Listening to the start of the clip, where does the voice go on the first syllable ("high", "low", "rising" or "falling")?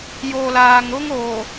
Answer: low